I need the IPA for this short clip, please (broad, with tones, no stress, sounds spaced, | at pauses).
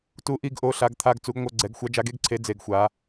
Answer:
t u˧˥ ʔ i˧˥˧ ɡ ʔ o˧˥˧ ɬ a˧˥ ɡ t̪ʰ a˧˥˧ ɡ t͡s u˧˥ ɡ ŋʷ ʌ˧˥˧ ɡ͡ǀ ɛ˧˥ ɡ xʷ a˧˥ d͡ʒ a˧˥ ɡ e˧˥ ɡ ǀʰ e˧˥ d͡z e˧˥ ɡ xʷ a˧˥